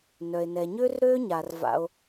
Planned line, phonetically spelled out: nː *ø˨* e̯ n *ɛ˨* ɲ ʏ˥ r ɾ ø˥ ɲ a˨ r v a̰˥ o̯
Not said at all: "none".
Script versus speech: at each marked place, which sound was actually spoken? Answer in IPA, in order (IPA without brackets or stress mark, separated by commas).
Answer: œ˨, ɛ˨